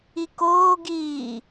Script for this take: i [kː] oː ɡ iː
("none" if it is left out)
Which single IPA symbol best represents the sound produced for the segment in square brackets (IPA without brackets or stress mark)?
k